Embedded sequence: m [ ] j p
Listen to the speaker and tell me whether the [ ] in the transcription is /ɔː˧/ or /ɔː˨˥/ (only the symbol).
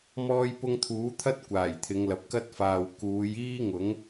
ɔː˧